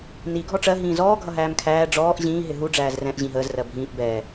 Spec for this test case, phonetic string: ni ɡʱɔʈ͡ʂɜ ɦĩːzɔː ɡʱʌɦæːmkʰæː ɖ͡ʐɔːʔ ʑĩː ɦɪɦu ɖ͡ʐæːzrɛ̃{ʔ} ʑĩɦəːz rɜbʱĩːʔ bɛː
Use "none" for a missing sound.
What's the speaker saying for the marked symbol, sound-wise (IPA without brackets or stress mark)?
ʔ